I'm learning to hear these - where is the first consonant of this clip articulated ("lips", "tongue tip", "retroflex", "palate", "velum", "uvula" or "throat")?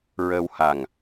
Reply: tongue tip